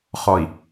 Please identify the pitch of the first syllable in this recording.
low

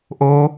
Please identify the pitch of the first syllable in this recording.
high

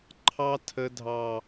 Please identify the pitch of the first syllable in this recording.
high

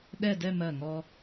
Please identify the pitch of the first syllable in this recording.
falling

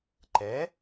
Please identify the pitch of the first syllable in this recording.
rising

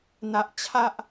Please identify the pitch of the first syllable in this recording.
low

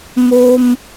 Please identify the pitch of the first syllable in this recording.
high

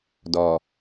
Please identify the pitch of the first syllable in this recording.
low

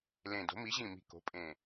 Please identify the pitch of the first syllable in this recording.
low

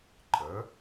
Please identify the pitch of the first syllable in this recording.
rising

